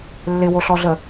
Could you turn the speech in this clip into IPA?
lː ɪ w o ɬ ɔ ɮ ə

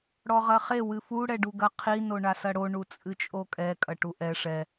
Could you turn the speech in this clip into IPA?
ɽ ɔ ʁ ɐ χ e w ɨ f u ɽ ɛ ɖ u ɡ ɐ qʰ i n o ɳ a s ɐ ɽ o ɳ u t͡sʼ ɨ t͡ʃʼ o kʼ ɛ kʼ ɐ ʈ u ʔ ɛ ʂ ɛ

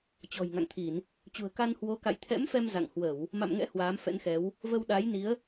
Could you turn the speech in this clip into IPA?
t͡ɕ ɔ̤˨˩ j ŋ a̰˧˨ ŋ t̪ʰ i˧˩˨ n | t͡ɕ ṳ˨˩ ə̯ k a˧ n h w o˨˦ k a̰˧˨ j t̪ʰ ɛ̰˧˥ m f ɛ˧ m z a̰˧˨ ŋ h w ə˧˩˨ w | m a̰˧˨ m ŋ ɛ̰˧˥ h w aː˨˦ m f ɛ̰˧˥ n x ɛ˨˦ w | v ə˧ w ɗ a˨˦ j n i˨˦ ə̯

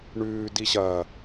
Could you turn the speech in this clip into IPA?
ɳ ʉː d i ɕ ɐː

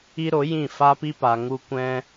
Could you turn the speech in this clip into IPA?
i˦ ɾ o˨˦ j ĩ˦˨ f a˦ p i˦ p a˨ ŋ u˧ kʷ ɛ̃˧

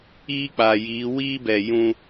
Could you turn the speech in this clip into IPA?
iː˦ k͡p a˨ j iː˨˦ w iː˦ b ɛ˨ j ũ˦

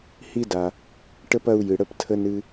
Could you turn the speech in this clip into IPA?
h i˦ d a˨ | ʈ ə˥ p ɐ˦ u̯ j ɨ˨ ɽ ə˥ p tʰ ə˥ n ɨ˦

